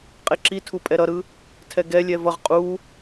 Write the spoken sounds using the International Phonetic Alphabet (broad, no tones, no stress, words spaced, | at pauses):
qʼeǁitʰu pʼɛɾʌɾɯ | tʰɛɡɛlʲɛ vʌʁ qʼu